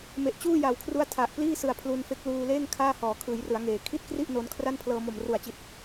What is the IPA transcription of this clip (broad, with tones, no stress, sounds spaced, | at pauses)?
m e˨˩ ʔ t͡ɕ uː˥˩ j a˨˩ w kʰ r u˦˥ a̯ tʰ a˨˩ ʔ p l iː˥˩ s ɯ˨˩ a̯ pʰ l u˧ n f e˦˥ k̚ l uː˧ l eː˥˩ ŋ kʰ aː˥˩ h ɔː˩˦ kʰ ɯː˩˦ j r ɯ˩˦ a̯ ŋ eː˩˦ kʰ i˥˩ t̚ k r i˥˩ ʔ n o˧ n kʰ r a˥˩ n pʰ l ɤː˧ m o˨˩ m r u˨˩ a̯ t͡ɕ i˨˩ t̚